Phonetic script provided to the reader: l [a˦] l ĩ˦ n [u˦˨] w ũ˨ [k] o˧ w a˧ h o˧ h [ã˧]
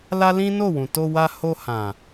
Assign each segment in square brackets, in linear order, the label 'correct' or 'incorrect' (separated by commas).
correct, incorrect, incorrect, incorrect